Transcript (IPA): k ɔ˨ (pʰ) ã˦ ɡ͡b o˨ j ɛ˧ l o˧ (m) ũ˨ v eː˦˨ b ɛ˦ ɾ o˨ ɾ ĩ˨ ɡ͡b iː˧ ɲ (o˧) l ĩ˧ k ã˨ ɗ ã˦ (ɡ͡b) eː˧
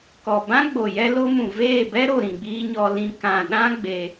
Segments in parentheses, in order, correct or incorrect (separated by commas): incorrect, correct, incorrect, correct